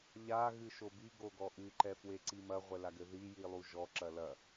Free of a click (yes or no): no